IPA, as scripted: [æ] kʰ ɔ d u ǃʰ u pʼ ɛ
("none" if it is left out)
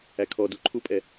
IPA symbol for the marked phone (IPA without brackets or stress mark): æ